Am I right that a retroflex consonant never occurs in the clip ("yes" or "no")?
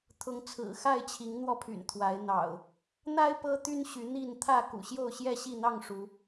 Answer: no